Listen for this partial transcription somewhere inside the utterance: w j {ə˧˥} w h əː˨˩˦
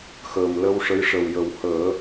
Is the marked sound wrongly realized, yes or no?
yes